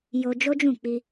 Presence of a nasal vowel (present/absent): present